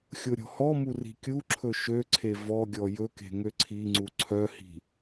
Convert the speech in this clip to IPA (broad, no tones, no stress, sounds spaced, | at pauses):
xʲ o ɾʲ ɔ̤ h ɔ m u r i̤ kʲ u ǁʰ ɵ ʃ ø ǀʰ e v ɔ ɡʲ ɔ j ɵ k e̤ ŋ ø ǀʰ i ŋ͡ǀ u ǀʰ œ h i̤